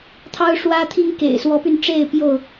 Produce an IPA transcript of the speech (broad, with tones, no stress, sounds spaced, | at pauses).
t̪ʰ ɑ˦ ʊ̯ ʂ w ä˦ t̪ʰ i˦ ŋ k ḛ˨˩ ɪ̯ s w ɔ˨˦ p y˧ n ʈ͡ʂ e˥˨ ɪ̯ p j o˥˨ ʊ̯